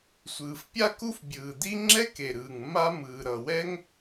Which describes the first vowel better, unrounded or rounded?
unrounded